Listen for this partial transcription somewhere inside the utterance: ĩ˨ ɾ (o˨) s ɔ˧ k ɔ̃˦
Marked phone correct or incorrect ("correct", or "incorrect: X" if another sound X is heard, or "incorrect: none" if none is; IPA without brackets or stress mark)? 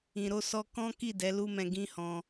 incorrect: o˧